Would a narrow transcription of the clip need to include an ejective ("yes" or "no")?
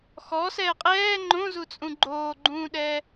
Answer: yes